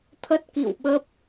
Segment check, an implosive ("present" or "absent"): present